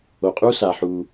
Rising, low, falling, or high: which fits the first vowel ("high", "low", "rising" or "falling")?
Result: low